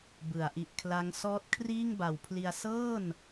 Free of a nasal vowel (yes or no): yes